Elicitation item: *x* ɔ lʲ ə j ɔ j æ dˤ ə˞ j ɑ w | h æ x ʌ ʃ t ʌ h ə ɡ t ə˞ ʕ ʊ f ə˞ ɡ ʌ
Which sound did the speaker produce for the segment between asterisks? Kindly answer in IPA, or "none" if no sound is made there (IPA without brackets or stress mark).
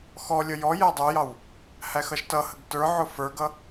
x